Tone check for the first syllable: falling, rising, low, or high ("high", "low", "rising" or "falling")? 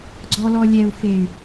low